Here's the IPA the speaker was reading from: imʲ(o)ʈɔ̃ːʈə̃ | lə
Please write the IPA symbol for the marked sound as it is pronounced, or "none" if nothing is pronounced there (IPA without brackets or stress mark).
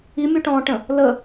u